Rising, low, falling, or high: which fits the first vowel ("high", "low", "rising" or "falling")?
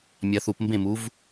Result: low